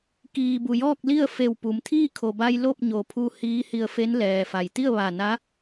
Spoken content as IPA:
k iː˩ b u˩ j ɔː˥˨ k̚ l i˥˨ ə̯ f e˧˩ w p u˩˧ m t̪ʰ iː˥˨ kʰ o˩ b a˧ j l o˥˨ p̚ ɲ o˩ pʰ u˧ h iː˧˥ h i˧ ə̯ f e˧˥ n l ɛː˩ f a˩ j t̪ i˥˨ ə̯ ʋ a˧˩ n a˧˥

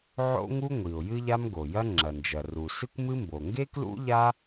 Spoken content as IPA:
ʕ o̰˥ ŋ u˥ ŋʷ i˩ ʊ̯ j ɨ˥ ʎ a˥ m ɡ o˩ j ɐ˥ ŋ͡ǁ ɐ˩ n d͡ʒ ɐ˩ r u˩ s ɨ˥ kʷ m ɨ˥ m b o˩ ŋ ɡ e˥ k l ṵ˥ ʎ a˥

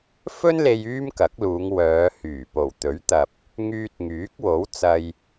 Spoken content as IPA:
f ɵ˥ n l e˧ j yː˥ m k ɐ˨˥ k̚ l uː˨˧ ŋ w œː˨˧ h yː˨˩ p o˨˩ w t̪ ɵ˨˥ ɥ t̪ ɐ˨ p̚ | ŋ yː˧ t̚ ŋ yː˨˥ k̚ w o˨˥ w t͡s ɐ˧ j

